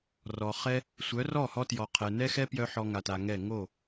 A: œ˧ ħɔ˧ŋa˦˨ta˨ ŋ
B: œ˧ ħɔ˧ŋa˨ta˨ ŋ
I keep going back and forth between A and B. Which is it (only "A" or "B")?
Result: B